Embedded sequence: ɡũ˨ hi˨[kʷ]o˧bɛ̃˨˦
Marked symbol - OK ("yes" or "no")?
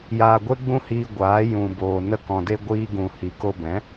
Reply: no